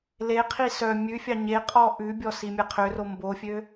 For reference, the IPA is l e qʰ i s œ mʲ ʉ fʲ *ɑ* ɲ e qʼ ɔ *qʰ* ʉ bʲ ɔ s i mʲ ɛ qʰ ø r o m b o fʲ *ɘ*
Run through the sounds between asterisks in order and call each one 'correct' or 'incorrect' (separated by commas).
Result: correct, incorrect, incorrect